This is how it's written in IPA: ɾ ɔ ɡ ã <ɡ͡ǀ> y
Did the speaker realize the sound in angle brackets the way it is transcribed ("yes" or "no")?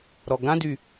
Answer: no